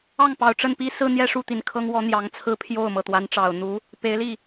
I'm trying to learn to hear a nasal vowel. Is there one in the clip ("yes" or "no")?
no